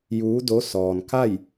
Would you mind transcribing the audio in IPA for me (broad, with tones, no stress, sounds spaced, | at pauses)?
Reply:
j uː˧˥ d o˧˥ s ɔː˩ n k a˥˨ j